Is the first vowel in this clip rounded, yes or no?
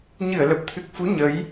no